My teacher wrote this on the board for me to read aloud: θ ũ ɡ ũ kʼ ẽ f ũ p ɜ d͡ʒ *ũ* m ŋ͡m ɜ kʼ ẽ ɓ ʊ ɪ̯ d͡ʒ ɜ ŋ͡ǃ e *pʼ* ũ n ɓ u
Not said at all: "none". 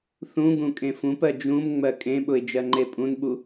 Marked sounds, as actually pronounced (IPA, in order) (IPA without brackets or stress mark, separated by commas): ũ, pʼ